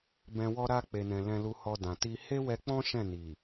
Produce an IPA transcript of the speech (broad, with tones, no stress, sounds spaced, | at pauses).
b ɛ̃˨ w ɔ˧ ɾ a˧ k͡p e˨ n ɛ̃˨ l ɛ̃˧ l u˧ h ɔ˧ d ã˨ t i˧ h e˦ w ɛ˧ k͡p ɔ̃˦ ʃ ɛ̃˦˨ n i˨